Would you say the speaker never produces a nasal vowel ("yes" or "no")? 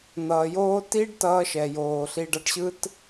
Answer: yes